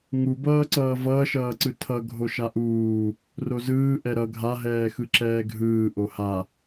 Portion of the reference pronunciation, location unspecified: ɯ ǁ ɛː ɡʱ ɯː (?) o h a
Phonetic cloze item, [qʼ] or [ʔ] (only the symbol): ʔ